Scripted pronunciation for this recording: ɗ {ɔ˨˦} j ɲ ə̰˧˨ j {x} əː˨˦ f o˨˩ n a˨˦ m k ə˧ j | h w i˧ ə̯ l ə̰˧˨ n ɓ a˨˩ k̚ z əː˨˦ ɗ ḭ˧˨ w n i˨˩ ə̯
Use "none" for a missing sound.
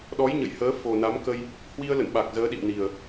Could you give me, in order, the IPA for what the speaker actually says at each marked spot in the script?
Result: ɔ˨˦, h

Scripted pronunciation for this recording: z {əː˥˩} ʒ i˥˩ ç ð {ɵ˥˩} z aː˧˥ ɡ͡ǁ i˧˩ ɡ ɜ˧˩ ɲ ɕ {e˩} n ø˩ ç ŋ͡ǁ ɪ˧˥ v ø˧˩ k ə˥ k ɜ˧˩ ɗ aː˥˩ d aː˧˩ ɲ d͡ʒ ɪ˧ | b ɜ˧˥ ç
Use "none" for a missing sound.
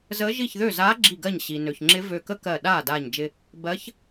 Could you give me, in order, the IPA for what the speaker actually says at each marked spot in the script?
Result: əː˧˥, ø˥˩, i˩

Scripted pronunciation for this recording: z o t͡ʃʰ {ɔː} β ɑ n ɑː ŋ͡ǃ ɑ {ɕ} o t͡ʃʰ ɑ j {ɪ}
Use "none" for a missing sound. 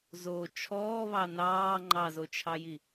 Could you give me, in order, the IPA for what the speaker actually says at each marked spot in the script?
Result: ɔː, z, i

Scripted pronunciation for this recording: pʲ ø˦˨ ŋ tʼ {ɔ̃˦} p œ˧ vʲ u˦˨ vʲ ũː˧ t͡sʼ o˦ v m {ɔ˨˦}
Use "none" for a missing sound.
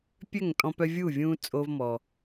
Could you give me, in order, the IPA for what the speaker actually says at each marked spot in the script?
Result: ɔ̃˧, ɔ˧

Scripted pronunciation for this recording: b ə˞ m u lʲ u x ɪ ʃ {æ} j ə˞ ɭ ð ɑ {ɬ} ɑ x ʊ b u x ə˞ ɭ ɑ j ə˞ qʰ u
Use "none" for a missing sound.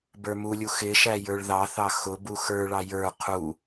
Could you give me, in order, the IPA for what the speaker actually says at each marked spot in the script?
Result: æ, θ

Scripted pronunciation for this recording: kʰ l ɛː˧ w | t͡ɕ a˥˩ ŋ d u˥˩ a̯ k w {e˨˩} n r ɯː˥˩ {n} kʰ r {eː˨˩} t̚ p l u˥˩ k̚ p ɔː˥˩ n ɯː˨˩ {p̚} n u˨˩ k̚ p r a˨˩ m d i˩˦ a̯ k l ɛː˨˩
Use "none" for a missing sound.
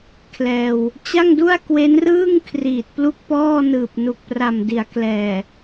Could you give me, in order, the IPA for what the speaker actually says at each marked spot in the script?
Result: e˦˥, ŋ, iː˨˩, p̚

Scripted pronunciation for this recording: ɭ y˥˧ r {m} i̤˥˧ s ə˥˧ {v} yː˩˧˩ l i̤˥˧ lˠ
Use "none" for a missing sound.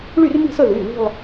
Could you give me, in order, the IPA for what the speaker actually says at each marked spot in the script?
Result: m, ð

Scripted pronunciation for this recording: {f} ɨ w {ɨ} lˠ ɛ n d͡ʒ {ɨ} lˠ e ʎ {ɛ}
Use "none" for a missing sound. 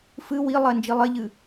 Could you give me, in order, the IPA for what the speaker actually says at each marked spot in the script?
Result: f, i, i, ɨ

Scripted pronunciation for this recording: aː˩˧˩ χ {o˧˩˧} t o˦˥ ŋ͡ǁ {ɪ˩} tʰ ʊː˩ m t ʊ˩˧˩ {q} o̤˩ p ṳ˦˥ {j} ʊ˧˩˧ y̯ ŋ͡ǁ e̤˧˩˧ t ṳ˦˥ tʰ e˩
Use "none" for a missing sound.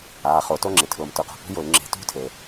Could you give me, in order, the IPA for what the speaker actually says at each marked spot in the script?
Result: o˧˩˧, ɪ˩, q, j

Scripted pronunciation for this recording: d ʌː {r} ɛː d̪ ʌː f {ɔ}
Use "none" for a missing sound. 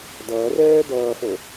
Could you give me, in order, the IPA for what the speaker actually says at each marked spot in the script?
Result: r, o

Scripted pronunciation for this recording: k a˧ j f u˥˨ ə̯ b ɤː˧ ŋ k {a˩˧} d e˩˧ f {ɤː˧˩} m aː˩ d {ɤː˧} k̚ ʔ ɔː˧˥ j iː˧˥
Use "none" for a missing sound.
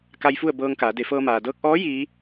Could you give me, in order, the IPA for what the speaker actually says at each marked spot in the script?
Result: aː˩˧, ɤː˧, ɤː˧

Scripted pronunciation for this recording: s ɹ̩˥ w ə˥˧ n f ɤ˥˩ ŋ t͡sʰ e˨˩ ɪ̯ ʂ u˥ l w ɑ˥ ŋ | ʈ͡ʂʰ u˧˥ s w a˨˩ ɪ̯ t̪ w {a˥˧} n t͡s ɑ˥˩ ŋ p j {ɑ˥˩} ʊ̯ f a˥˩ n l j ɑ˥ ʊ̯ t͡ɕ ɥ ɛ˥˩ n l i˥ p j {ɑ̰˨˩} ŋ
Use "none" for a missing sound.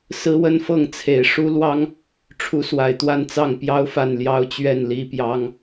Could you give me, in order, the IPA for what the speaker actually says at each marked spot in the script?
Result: a˥˧, ɑ˥, ɑ˥

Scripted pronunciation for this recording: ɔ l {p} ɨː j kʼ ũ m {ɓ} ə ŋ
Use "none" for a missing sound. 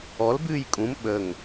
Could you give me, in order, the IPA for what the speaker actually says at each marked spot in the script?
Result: b, ɓ

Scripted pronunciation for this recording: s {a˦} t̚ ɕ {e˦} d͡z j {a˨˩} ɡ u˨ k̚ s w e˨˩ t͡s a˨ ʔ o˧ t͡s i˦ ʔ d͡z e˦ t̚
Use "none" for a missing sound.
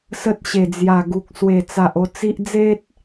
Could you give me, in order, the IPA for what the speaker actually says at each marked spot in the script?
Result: ə˦, e˨˩, a˨˩

